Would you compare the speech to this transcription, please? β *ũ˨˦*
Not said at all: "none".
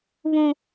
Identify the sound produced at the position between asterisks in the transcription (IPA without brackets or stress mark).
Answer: ũ˨